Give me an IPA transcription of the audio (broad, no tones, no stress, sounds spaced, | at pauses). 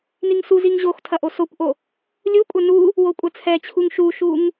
n i ŋ s u z i ŋ ʑ o x tʰ ɐ ʔ o s o kʷ ʔ o | lʲ u kʷʼ ɐ n u | w o kʷʼ ɐ t͡sʰ ɛ t͡ɕʰ u ŋ ʃ u ʃ u ŋ